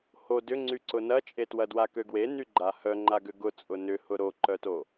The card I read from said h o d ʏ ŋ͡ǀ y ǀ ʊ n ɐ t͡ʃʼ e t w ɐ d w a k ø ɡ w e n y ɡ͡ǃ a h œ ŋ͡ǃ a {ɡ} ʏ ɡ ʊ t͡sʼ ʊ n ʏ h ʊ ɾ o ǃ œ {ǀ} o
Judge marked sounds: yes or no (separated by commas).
yes, no